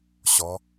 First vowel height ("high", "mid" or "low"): mid